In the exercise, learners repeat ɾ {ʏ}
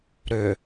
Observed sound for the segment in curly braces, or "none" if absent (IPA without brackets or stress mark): ʏ